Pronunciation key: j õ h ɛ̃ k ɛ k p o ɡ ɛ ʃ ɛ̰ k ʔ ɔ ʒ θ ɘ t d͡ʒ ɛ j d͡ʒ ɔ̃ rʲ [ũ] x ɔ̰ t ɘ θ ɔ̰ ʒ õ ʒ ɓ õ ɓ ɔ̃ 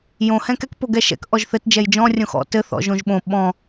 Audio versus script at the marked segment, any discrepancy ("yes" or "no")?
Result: yes